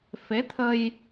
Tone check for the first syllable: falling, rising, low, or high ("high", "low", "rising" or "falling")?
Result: rising